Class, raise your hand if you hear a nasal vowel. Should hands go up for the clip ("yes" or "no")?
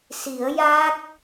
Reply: no